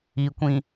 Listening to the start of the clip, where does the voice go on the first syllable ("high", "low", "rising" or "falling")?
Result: low